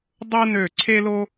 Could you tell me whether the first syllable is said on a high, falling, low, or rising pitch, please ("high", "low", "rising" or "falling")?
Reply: high